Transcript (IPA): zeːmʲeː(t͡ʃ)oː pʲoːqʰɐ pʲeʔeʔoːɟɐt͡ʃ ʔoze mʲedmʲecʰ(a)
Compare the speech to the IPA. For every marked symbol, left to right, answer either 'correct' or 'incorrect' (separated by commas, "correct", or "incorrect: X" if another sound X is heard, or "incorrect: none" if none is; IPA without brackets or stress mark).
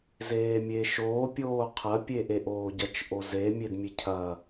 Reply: incorrect: ʃ, incorrect: ɐ